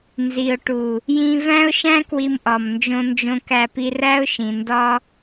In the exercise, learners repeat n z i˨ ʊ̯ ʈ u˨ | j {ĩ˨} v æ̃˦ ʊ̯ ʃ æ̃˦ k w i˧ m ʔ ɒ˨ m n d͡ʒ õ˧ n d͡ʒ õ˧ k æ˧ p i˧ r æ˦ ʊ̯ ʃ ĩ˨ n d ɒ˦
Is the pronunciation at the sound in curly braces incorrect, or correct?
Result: incorrect